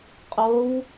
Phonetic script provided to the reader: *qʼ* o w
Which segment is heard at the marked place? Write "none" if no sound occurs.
qʼ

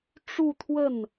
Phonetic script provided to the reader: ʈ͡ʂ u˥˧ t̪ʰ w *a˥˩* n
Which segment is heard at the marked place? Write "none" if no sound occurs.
ə˥˩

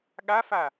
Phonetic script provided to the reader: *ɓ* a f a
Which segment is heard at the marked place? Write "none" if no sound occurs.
ɠ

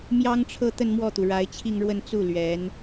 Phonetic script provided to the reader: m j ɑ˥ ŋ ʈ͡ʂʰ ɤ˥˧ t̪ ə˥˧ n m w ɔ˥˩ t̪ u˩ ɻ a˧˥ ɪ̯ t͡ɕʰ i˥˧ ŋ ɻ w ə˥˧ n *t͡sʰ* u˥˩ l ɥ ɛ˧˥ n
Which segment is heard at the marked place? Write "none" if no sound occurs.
t͡s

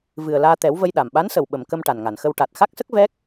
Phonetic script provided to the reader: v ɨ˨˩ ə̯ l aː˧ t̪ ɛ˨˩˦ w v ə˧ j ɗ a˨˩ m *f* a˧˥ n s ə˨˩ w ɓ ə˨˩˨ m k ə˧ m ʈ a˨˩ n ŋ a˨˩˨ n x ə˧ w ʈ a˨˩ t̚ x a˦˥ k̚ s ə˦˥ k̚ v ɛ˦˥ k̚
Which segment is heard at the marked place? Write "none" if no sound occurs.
ɓ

